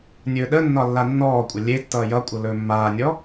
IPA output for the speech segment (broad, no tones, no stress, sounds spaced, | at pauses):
nʲ ɵː ɗ ə nː ɒ lː a nː ɔː kʷʼ ə lʲ e tː ʌː j ʌ kʷʼ ʌ l ɵː mː aː nʲ ɔ